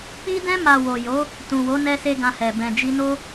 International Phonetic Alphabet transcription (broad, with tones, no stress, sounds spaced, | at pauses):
k͡p i˧ d ɛ̃˧ m a˨ w o˨ j o˨˦ | t ũ˨ w o˨˦ n ɛ˦ s e˦ ɡ ã˧ h ɛ˨ b ɛ̃˨ d͡ʒ i˧ n o˦